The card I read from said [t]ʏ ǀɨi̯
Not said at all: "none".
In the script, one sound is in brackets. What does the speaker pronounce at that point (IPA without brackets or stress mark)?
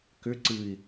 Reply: k